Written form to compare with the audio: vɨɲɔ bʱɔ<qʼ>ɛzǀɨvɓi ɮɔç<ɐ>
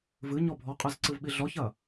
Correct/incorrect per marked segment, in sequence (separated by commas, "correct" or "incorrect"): correct, correct